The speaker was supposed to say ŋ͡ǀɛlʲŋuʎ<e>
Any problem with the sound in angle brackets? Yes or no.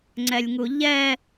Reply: yes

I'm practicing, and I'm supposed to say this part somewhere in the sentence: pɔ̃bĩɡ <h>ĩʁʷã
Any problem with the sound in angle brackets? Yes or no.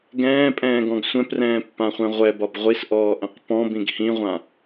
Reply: no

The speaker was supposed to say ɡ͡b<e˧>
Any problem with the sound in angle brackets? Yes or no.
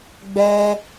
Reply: yes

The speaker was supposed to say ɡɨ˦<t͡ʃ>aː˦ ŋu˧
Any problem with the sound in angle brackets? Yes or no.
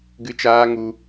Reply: no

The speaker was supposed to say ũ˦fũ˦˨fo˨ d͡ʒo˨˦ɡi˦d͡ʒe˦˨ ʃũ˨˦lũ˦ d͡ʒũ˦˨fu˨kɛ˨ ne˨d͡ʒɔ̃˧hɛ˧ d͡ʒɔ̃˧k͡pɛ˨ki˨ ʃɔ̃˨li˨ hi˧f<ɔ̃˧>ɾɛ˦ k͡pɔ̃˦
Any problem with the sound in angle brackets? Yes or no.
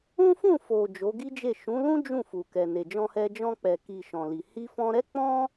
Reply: no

